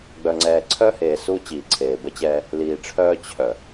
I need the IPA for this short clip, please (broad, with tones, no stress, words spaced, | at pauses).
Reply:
ɡ͡bœ˨ŋ͡ǀɛː˨ǀʰœ˦heː˨ su˦ t͡ɕiː˨ǀʰeː˨bə˦t͡ɕɛː˦ | liː˨ʈ͡ʂʰœː˦ t͡ɕʰœ˨